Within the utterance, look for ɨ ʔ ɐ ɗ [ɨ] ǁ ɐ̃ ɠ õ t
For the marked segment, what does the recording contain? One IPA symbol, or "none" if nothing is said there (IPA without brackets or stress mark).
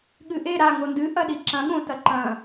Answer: i